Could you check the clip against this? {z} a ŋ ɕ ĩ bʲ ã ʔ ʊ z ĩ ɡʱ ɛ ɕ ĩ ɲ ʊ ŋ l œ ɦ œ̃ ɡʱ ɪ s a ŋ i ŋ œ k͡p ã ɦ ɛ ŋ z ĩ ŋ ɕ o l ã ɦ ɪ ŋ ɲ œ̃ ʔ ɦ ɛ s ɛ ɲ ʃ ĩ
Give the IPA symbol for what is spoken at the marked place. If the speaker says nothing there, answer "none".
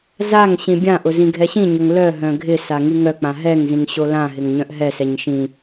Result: z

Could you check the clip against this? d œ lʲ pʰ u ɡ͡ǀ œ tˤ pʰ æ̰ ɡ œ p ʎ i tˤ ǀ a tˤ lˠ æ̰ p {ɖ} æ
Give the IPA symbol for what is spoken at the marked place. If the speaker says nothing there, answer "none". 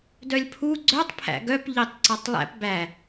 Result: b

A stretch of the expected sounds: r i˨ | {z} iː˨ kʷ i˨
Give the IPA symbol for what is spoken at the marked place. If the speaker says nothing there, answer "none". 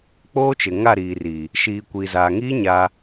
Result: ʃ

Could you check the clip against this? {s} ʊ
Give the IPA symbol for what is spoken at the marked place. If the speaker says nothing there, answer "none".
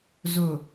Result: z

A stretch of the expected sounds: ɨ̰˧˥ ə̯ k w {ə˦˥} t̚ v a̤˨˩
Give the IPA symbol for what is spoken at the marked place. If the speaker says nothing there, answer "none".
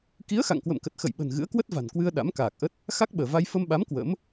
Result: ə˦˥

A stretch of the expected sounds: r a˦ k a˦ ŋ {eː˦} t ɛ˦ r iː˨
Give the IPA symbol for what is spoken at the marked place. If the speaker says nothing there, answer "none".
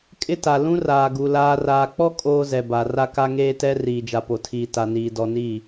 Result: eː˦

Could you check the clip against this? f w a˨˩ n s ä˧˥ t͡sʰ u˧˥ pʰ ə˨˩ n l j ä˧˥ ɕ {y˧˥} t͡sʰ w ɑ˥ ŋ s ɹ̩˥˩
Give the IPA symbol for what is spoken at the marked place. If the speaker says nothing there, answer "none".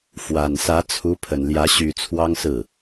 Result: y˨˩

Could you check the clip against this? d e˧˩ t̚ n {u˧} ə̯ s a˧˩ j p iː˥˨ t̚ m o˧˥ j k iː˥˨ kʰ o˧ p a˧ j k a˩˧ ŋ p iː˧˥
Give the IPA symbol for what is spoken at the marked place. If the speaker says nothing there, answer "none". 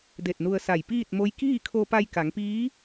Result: u˧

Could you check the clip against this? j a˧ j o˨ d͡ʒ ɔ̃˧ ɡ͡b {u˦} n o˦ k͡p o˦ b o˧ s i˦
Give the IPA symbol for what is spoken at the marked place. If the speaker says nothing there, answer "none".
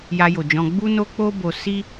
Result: u˦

